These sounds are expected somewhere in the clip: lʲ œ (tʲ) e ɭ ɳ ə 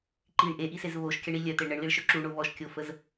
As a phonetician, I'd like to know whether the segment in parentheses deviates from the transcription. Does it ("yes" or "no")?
yes